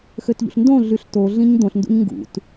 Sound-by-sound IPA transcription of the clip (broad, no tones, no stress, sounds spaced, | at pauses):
x ø t ʎ ṵ ɬ n d õ ɮ y ɬ t o ɮ ĩ ɲ d̪ õ ɬ n d ṵ ɲ ŋ ɡ ṵ t